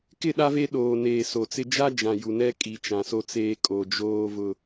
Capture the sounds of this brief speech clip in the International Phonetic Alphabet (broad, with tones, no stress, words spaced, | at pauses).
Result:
kɪ˦˨ɗa˦ve˦ ɗoː˨ neː˨so˨t͡sɪ˦ d͡ʒa˦d͡ʒã˨ ju˨nɛ˦kʼi˨ t͡ʃã˨so˦t͡seː˦ kʼo˨ d͡ʒoː˦ vʊ˦